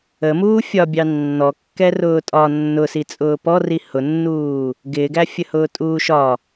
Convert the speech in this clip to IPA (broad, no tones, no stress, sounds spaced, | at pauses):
ə m uː fʲ ɒ bʲ ɑ nː ɔ kː ɛ r ʊː tʼ ɒ nː ʊ s i t͡sʼ ʊː p ɔ r i h ʊ nː uː | ɡ ɪː ɡ æ fʲ ə h ʊː tʼ uː ʃ ɒ